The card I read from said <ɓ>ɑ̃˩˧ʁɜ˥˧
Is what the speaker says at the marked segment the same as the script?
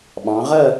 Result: yes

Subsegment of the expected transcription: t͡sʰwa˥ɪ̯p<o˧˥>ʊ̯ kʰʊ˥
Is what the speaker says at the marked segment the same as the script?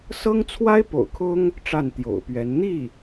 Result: no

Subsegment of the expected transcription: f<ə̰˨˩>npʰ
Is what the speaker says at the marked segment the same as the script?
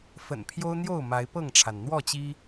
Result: yes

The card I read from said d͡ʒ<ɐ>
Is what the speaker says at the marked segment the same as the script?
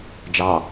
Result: no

